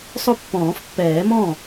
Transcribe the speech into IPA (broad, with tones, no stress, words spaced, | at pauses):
sˤʊ˥˩pːɔ̃ː˨˩˦fpːɛː˨˩˦mɔ̃˥˩